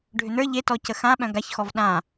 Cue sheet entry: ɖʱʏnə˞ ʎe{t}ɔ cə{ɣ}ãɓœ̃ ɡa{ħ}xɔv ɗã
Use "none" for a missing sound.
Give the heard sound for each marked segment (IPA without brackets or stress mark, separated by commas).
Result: t, x, ç